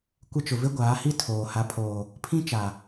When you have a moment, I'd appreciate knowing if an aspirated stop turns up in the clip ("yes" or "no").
yes